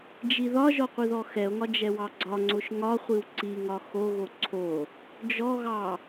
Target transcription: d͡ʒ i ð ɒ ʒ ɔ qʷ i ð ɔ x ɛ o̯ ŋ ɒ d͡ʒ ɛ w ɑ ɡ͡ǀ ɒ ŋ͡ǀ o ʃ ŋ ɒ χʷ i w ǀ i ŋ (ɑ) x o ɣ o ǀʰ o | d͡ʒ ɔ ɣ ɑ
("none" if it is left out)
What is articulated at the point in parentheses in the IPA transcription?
ɒ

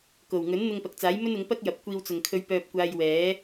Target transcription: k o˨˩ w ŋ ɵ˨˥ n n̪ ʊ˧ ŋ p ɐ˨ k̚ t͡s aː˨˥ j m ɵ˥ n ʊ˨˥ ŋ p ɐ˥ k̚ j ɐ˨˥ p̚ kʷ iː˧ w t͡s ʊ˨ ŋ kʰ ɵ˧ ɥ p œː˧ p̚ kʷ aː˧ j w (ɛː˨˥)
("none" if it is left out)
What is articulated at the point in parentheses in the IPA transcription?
ɛː˨˥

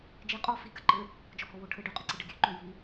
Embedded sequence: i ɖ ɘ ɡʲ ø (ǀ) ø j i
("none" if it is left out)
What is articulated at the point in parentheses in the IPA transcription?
ǃ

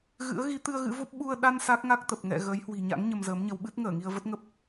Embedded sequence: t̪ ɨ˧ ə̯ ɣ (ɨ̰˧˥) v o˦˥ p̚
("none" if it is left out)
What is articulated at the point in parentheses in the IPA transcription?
ɨ̰˧˥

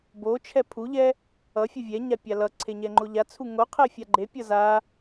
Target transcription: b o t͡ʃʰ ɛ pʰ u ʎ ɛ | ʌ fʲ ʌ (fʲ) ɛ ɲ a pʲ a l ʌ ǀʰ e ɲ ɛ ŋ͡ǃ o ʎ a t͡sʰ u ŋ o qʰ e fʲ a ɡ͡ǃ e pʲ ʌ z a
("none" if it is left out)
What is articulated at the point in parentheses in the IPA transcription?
vʲ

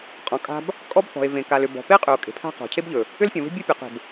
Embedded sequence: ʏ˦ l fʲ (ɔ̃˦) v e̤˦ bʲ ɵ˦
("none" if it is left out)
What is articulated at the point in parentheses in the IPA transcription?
ɔ̃˨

